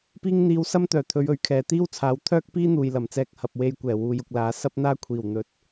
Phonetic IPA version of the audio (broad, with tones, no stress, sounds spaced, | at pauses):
p iː˧ ŋ n̪ iː˨˧ w s ɐ˥ m t̪ œː˨˩ t̪ʰ ɵ˨˧ ɥ ɵ˨˥ ɥ kʰ ɛː˨ t̪ iː˥ w t͡sʰ aː˨˧ w t̪ʰ œː˥ k̚ p iː˥ n̪ uː˨ j l ɐ˨˩ m t͡s ɛː˧ k̚ h ɐ˨ p̚ w e˧ j kʷ ɛː˨˩ w uː˨˧ j ʊ˨ k̚ l aː˨˧ s ɐ˥ p̚ n̪ aː˥ kʷʰ iː˨˩ w n̪ ɵ˨˥ t̚